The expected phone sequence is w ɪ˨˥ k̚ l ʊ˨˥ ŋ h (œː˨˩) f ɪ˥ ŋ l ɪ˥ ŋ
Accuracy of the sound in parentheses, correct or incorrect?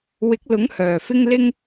correct